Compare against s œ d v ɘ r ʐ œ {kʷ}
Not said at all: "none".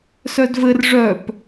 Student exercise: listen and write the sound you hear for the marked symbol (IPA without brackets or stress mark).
p